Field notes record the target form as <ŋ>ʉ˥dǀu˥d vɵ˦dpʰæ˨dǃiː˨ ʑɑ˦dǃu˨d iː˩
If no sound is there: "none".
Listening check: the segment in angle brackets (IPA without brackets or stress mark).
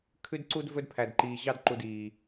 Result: kʰ